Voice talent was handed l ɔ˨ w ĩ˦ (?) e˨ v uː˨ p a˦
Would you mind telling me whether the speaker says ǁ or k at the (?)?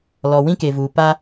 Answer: k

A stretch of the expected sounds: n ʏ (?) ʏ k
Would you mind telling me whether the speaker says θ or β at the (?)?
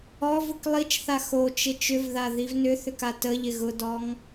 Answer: θ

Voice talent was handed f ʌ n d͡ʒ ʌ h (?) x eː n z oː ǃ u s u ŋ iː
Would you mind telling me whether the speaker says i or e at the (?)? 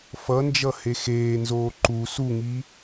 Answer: e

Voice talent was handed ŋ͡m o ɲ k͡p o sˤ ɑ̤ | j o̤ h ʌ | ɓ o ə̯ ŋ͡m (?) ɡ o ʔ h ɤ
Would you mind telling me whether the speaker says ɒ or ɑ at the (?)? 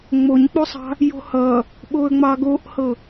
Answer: ɑ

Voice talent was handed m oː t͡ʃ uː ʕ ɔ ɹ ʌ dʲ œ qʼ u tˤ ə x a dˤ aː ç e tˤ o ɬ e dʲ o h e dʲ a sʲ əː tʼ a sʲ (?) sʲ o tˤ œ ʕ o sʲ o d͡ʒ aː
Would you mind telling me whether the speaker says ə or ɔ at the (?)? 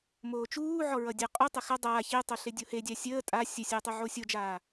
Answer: ə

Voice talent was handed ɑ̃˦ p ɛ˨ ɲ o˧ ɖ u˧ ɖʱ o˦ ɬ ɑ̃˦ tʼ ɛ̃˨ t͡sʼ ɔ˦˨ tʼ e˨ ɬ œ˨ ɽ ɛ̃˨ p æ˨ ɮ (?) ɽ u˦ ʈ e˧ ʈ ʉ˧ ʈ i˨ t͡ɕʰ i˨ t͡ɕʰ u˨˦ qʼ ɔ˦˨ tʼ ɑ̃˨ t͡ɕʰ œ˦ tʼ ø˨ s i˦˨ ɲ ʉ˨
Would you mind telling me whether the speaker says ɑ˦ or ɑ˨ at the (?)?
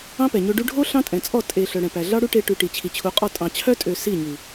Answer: ɑ˦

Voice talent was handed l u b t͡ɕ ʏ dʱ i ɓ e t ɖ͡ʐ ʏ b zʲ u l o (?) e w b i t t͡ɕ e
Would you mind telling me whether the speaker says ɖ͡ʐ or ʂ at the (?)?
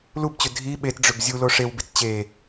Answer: ʂ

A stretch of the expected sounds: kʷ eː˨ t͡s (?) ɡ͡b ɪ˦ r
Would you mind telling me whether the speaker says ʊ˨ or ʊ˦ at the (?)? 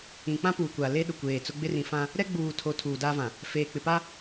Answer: ʊ˦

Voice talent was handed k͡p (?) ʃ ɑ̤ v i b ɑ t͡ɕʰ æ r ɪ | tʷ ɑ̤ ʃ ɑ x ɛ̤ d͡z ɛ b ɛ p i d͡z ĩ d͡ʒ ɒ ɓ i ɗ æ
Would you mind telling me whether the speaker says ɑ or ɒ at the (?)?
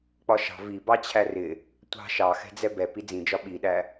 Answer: ɒ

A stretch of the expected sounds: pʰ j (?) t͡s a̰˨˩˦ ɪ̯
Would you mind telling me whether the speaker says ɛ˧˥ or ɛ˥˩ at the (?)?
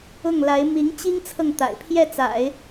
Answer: ɛ˥˩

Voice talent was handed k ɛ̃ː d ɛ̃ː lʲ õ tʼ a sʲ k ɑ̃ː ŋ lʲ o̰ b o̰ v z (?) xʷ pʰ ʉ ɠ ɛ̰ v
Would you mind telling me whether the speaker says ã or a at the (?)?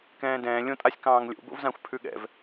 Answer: ã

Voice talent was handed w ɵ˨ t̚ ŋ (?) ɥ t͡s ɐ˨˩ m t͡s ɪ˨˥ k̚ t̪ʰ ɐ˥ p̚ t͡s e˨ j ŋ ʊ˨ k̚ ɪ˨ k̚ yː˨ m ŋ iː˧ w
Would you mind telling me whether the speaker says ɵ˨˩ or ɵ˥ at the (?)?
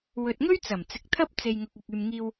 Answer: ɵ˥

